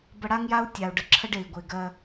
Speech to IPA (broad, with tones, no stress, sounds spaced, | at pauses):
b ə˧ ɽ a˦ ŋ j a˦ u̯ tʲ a˨ u̯ ɖ ə˨ ǁʰ ə˦ ɖ e˨ i̯ ɡʷ e˨ ɡ ɜ˧